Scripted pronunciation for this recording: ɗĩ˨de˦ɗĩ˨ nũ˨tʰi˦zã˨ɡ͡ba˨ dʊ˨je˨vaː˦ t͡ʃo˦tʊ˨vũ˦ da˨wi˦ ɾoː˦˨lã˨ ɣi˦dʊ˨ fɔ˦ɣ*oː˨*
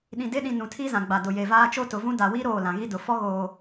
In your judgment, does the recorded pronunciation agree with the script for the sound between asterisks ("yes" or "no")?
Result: yes